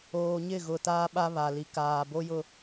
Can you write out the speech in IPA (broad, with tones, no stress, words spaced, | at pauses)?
oː˨ɲɪ˦˨ɣʊ˨ taː˦ɓa˦βa˨ li˨kaː˨bo˦jʊ˦